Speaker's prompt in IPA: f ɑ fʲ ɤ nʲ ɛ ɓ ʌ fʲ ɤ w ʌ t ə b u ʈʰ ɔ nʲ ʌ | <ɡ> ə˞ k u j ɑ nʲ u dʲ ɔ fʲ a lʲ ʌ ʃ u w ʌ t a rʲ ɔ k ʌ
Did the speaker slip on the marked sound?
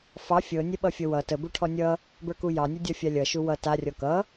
yes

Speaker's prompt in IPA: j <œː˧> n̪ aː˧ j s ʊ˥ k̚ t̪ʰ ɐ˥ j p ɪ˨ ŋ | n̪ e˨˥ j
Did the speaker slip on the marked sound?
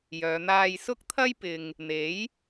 yes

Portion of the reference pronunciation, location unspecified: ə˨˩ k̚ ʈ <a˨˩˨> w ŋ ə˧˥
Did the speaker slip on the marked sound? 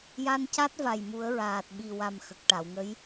no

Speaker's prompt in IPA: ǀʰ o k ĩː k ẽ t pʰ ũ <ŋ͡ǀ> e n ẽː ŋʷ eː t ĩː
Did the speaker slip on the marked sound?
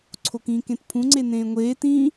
no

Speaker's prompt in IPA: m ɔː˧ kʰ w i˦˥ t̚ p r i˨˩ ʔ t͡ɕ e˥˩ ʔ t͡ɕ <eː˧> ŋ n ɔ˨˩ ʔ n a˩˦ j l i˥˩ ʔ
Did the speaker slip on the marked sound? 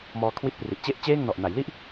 yes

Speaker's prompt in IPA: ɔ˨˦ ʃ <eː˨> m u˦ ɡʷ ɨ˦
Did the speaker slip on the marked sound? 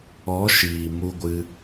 yes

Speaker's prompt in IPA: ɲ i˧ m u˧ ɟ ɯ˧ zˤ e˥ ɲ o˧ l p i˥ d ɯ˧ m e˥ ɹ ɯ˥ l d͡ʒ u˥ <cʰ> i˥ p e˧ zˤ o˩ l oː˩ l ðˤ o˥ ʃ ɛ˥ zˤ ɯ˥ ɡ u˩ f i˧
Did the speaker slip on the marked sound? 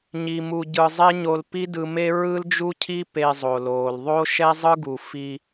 no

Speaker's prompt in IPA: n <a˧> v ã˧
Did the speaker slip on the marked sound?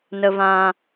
yes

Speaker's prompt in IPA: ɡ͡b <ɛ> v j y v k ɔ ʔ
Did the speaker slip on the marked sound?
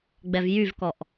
no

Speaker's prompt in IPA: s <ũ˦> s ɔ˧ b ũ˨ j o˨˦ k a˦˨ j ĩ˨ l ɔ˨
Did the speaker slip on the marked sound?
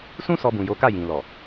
no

